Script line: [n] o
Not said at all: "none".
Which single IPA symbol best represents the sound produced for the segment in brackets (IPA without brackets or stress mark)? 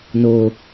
n